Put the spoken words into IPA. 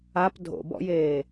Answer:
ap dʱo̰bɔ̰jeː

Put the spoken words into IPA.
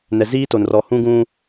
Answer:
nɛ˨ziː˦to˨n rɔ˨hũ˦ɡũ˦

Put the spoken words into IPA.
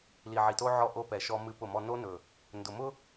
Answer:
li˨ʕi˨to˦ʕɔ˦˨ ʔo˦pɛ˨ʃɔ˦ mɨ˦pʊ˦˨mɔ˦ no˦nɵ˨ | ndʊ˨mʊ˦

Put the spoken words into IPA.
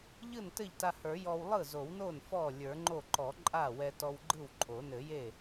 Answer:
ʎɯ˥˩ntɘ˥˩ʎta˧hə˞˨˩˦ jɔ˧w lˠɯ˥˩zo˨˩˦wno˥˩n fɔ˥˩ lʲə˞˨˩˦ŋ͡ǃo˥˩ ǃɔ˨˩˦ǃʼa˥˩wɛ˧ tɔ˧wɡ͡ǃɯ˥˩wǃʼo˨˩˦ nɘ˨˩˦je˥˩

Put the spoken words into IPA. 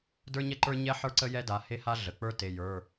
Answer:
də˞˥ɲɛ˥ǃə˞˥ɲɛ˥ ħə˞˥ǀə˥ jɛ˥da˩˧˩ he˥ha˥ɮə˩˧˩ k͡pə˞˥te˩˧˩jə˞˩˧˩

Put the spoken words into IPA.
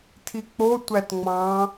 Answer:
tʰik͡potʷæt ŋ͡mɑ̃

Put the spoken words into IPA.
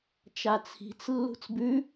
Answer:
t͡ʃat͡sʰi̤t͡s lːṳt͡sbʉ

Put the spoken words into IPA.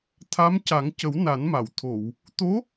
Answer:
t̪ʰa˧˥mca˨˩˦ŋcə˨˩˦w na˨˩˦nma˨˩˨wt̪ʰo˨˩˨w | t̪o˧˥

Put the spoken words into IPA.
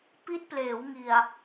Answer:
pi˦˥t̚pleː˩˦wŋi˨˩a̯

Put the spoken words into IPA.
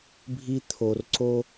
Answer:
bʱi˧t̪ʰo˩r ǀo˧

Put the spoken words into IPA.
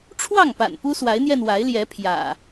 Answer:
ʈ͡ʂʰwɑ˥˨ŋpa̰˨˩n pu˦swa˨˦ɪ̯n̪jɛ˧n wa˨˦ɪ̯ljɛ˨˦ pʰjä̰˨˩

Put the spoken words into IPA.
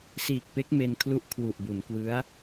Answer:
siː˨˩k̚pe˦˥k̚me˧nkʰlu˦˥ʔ kʰwu˨˩ʔbu˩˦nkwɯ˦˥a̯

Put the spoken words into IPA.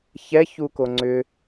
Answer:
çɛçu koŋ͡ǀʏ

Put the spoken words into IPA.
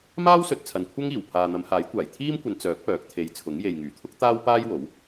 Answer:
maː˥w sɵ˨t̚t͡sʰɐ˨n kʷʰɐ˥ŋiː˨˩w pʰaː˨n̪ɐ˨˧mhaː˨˥jkʷaː˨˩j t̪ʰiː˥mkʷɐ˨˧n t͡sœː˨˥k̚ pœː˨˥k̚t̪ʰe˨˧jt͡sʰʊ˨˥ŋ je˨jŋyː˨˩t̪ʰʊ˥k̚ t̪aː˥wpaː˥j wo˨˥w

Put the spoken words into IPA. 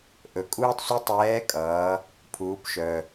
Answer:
ʔɵ˩kʼuː˥tˤsʷɛ˥ tˤɛː˧˥kʼʌː˩˧ | pʰuː˩˧pʃœ˩

